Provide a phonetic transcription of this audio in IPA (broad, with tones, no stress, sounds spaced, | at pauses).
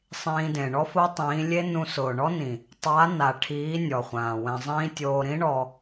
sˤ ĩː˧ d ẽ˨ ɳ ɔ˦ f o˦ tˤ ĩː˨˦ lʲ e˦ n ũ˧ s ʊː˨ ɳ ɔ˦ n ĩ˨ | tˤ a˨˦ n a˨ ʈʰ iː˨˦ nʲ ɔ˨ χʷ ãː˨ w ɛ̃˧ zˤ ĩː˦ tʲ oː˧ ɾ ĩ˦ ɳ ɔ˧